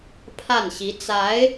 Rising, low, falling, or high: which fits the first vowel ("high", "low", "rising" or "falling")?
falling